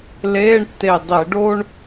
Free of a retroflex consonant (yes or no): no